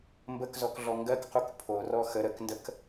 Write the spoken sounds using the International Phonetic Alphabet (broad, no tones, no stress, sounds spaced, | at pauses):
m b ə k z ɔ k ɮ ɔ ŋ ɡ ɜ k q u k pʰ o r ɔ x ə ɾ ə k n d ə k